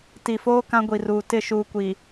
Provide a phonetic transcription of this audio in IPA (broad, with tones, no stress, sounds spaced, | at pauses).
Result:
t i˨ f oː˦ k ã˦ ɡʷ i˨ r uː˨ t ɪ˦˨ ʃ uː˨ kʷ i˨